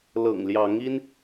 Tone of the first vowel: low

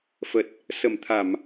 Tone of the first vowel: low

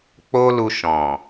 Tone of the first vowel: high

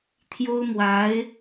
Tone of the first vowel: high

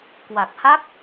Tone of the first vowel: low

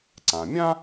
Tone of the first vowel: low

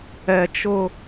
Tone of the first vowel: high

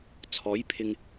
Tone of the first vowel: rising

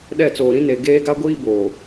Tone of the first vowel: falling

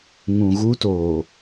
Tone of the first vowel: low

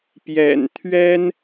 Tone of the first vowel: low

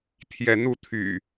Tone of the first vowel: rising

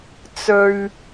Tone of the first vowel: low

